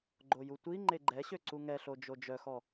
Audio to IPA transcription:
ɡ͡ǃ o j u tʷ i ŋ͡ǃ e ɡ͡ǃ ɛ ɕ ø ǀ u ŋ ɛ ɬ o d͡ʒ o d͡ʒ œ x ɔ

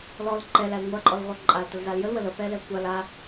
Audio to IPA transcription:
l ɔ l ǃ ɛ l æ l ŋʷ a ǃʼ ɔ l ʁʷ æ ǃʼ a l t ə l z a l j ə l w ə l ə p ɛ l ɛ kʷ a l a

